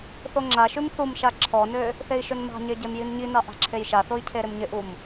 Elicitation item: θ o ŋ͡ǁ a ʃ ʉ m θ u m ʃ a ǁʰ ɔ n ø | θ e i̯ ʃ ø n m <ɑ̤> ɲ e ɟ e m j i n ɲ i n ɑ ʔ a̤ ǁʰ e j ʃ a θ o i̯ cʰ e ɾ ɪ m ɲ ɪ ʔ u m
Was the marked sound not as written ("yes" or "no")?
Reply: no